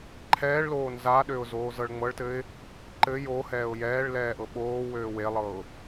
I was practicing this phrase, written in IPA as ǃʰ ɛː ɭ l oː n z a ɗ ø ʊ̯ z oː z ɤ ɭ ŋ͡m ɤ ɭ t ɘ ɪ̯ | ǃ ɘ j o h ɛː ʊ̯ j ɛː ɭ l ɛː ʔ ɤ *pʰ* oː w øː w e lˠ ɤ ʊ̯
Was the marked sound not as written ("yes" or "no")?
yes